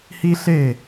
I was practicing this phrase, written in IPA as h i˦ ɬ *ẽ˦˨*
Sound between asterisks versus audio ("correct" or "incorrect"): incorrect